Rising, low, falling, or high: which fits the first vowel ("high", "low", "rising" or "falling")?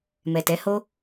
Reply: low